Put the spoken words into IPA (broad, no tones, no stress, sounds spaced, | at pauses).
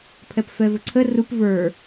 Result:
pʰ ɛ p f ɛ v ɵ ǀʰ ə r u p v ə˞